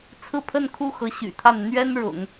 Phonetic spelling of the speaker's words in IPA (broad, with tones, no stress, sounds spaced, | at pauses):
t͡sʰ ɹ̩˥˧ pʰ ə˥˧ n kʰ u˥˩ x ɤ˧˥ ɕ y̰˨˩ t̪ʰ a˥˩ n n̪ ɥ ɛ˥ n ɻ ʊ̰˨˩˦ ŋ